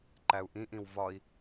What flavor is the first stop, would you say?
click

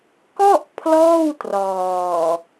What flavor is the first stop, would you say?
plain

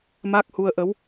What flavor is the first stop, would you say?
plain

